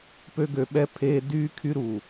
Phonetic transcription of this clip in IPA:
p ø˧ ɡ ø˨ ɓ ɛ˧ pʰ eː˧ d yː˦ kʰ y˦ ɾ u˨

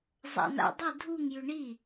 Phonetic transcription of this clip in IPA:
zˤ a̰ n a̰ dˤ ɨ dʱ u ŋ j ʉ ɳ i

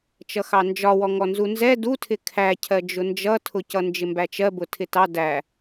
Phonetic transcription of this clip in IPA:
t͡ʃ ʌ x ɑ n d͡ʒ ɒ w ɔ ŋ ɔ n z u n z ɛ d u tʰ ɪ kʰ æ cʰ ɜ d͡ʒ ʊ n d͡ʒ ʌ tʰ ʊ c ʌ n d͡ʒ ɪ m b æ t͡ʃ ɜ b ʊ tʰ ɪ t ɑ d æ

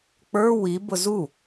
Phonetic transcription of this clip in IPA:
k͡p ə˞ w i b ʊ z u

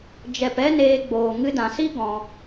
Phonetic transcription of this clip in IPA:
d͡ʒ ɛ˨ p ɛ˦ n eː˧ ɡ͡b oː˨ ŋ ɨ˧ d ã˨ s i˦ ɡ ɔ̃˧

